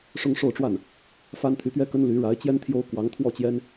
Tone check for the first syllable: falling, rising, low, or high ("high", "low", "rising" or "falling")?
high